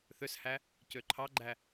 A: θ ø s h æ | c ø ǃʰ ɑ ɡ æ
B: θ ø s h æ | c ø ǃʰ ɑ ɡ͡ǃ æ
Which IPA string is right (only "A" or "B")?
B